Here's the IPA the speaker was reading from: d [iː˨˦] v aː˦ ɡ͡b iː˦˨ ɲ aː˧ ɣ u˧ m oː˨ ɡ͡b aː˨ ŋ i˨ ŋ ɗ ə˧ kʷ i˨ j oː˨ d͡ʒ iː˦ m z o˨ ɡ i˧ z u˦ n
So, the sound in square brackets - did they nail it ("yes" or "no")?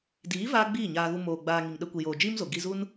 yes